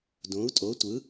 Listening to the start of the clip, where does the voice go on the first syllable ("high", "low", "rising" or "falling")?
rising